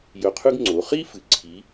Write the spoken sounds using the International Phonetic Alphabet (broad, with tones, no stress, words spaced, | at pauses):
jɵ˧qʰʉ˥ɡ ŋ͡ǀo˩˧χi˥ fɨ˩˧ǀʰi˨˥